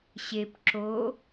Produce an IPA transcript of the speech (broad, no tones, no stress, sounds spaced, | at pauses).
ɕ e p ǁ o